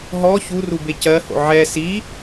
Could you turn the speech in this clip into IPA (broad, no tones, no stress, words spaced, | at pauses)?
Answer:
ɦɔ çuru becɜho̰ ʕɛ si